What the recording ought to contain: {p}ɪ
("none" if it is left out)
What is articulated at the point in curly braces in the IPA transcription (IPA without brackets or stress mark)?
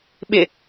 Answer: ɓ